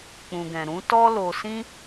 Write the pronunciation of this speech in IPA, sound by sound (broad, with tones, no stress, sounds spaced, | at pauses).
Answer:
k͡p ũ˨ ɡ ɛ̃˨ ɾ ũ˨˦ t ɔ˦ l o˧ s ĩ˦